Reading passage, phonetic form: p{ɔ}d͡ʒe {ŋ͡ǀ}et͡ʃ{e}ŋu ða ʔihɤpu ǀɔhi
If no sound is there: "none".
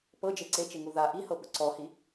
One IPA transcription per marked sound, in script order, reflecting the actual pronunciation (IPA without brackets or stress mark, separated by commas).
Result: ɤ, ǀ, e